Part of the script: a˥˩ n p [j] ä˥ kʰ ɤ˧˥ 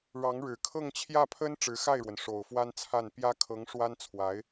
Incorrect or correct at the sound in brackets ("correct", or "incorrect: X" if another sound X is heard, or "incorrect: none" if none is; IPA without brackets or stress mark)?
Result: correct